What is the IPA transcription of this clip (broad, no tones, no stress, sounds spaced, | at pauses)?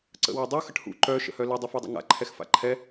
ǀ ə̰ w a dˤ u x ə ʈ h ṵ ǃ œ ʃ ə̰ h œ l ə dˤ u f a dˤ ə̰ ŋ a̰ ǃʰ ɛ x f a̰ ǃʰ ɛ